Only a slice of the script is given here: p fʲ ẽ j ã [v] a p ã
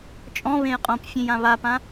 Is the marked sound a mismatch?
yes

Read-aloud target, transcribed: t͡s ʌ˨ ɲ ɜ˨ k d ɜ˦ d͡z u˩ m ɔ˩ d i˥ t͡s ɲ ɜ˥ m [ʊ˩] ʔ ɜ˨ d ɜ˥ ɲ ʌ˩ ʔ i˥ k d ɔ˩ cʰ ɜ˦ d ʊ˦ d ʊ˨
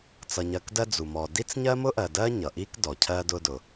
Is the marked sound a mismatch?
yes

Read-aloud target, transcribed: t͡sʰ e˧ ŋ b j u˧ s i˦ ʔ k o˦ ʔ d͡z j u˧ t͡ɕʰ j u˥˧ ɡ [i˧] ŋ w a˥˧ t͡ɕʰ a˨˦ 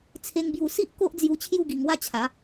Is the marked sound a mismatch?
no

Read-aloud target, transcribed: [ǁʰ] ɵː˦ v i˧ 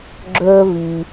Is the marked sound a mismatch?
yes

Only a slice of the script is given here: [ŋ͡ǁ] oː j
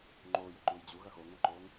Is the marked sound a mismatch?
yes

